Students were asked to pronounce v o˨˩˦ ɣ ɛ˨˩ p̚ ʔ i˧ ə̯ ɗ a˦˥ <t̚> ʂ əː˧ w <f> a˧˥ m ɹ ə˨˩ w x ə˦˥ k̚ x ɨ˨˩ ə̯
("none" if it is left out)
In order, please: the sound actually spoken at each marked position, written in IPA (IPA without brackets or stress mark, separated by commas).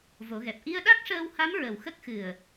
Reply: k̚, h